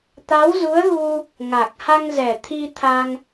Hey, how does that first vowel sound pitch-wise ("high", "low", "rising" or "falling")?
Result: rising